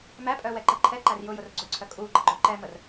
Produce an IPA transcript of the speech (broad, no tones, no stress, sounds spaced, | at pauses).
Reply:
m æ pʼ œ w ɛ ǃ ə ǃʰ ɛ ǃ æ r j ʊ j ʊ r ɡ͡ǀ ʊ ǀʰ œ kʼ u ɡ͡ǃ ə ɡ͡ǃ o ǃ ɛ m ə r